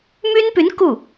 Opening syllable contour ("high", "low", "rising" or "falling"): high